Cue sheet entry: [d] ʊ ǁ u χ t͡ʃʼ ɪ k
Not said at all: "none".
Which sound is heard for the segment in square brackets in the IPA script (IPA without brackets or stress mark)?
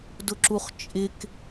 d